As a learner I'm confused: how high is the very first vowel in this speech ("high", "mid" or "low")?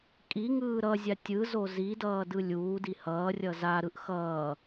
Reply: high